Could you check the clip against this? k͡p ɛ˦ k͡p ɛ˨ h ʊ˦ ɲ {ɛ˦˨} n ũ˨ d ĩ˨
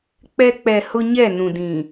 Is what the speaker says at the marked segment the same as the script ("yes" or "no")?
yes